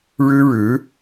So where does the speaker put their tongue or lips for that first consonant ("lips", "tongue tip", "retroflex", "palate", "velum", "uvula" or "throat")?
retroflex